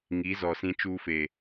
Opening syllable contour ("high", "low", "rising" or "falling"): rising